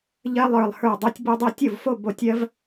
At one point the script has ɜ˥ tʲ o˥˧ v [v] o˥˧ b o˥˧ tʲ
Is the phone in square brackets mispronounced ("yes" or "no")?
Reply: yes